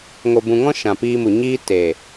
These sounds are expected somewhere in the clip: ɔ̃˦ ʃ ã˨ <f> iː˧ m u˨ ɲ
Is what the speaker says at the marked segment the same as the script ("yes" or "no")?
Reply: no